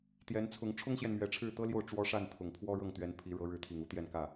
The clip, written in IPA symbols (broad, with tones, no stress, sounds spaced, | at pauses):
t̪ j ɛ˧˥ n t͡sʰ ʊ˧˥ ŋ ʈ͡ʂʰ ʊ˥ ŋ ɕ j ɛ˨ n m ɥ ɛ˧˥ ʈ͡ʂʰ ɻ̩˥˩ t̪ ɤ˥ l j o˥˩ ʊ̯ ʈ͡ʂ w ɔ˥ ʂ a˥˩ n t̪ʰ ʊ˨˩ ŋ pʰ w ɔ˥ ɻ ɤ˥˩ ŋ t̪ ɥ ɛ˧˥ n pʰ i˧˥ ɻ ɤ˧˥ ɻ ɻ̩˧˥ t̪ʰ i˨˩ ŋ u˥ t̪ j ɛ˥˧ n k ä˥˩